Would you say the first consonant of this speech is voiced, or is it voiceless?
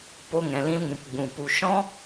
voiceless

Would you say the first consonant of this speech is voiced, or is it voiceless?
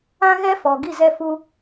voiced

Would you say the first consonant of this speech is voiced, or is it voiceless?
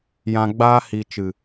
voiced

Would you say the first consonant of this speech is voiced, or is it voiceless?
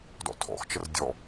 voiced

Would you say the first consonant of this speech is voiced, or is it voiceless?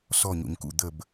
voiceless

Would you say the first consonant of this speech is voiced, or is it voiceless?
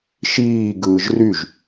voiceless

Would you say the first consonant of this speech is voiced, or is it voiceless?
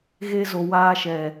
voiced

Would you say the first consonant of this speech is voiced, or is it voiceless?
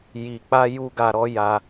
voiced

